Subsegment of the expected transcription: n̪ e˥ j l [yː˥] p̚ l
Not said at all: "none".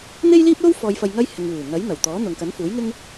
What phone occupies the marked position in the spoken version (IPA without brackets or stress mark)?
iː˥